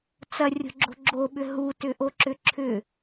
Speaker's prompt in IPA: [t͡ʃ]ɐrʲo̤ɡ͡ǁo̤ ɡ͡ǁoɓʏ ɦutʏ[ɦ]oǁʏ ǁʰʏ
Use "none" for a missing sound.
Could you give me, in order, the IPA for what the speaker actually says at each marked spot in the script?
t͡s, ʔ

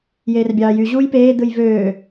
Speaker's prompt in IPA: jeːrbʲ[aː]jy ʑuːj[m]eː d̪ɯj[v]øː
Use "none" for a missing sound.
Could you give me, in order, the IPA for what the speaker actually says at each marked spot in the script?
ɑː, p, v

